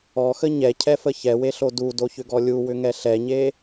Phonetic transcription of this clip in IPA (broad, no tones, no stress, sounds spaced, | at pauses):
ɔ x ə ɲ ɛ cʰ ɛ f ə ç ɛ w e ɬ o d u d o ç ʏ ɡ ɔ lʲ u w ʏ ŋ ɛ ɬ ɛ ɲ e